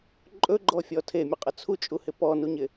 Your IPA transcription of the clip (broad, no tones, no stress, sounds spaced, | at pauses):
ǃʼ ɵ ɡ͡ǃ ɔ fʲ ɔ tʰ e mʲ ɵ qʼ ə t͡sʰ u t͡ʃʼ u h ɪ p ɔ n u ɲ ɪ